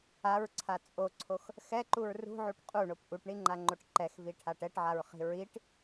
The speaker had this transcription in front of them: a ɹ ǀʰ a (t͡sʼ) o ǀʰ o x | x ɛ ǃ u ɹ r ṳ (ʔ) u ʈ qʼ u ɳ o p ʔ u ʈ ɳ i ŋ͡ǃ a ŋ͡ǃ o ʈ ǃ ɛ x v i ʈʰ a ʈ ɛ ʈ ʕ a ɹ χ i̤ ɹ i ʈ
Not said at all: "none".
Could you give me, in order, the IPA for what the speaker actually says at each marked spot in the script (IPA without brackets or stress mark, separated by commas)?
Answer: t͡sʼ, ʕ